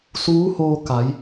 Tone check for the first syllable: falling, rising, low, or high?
rising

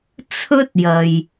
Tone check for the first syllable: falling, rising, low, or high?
high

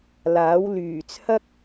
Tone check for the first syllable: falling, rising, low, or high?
rising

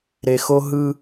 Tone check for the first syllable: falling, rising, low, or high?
low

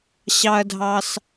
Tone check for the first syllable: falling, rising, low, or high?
high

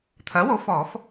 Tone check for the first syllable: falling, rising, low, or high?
rising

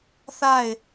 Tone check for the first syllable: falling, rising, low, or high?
falling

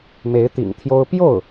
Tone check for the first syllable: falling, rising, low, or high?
rising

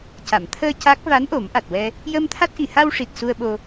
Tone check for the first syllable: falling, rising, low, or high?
low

